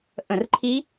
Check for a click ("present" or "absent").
present